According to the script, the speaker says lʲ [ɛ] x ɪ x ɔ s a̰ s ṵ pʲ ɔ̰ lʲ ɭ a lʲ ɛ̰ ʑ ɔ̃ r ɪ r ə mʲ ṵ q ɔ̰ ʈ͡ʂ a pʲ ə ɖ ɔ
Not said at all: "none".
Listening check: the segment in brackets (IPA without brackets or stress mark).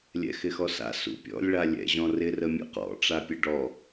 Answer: ɛ̰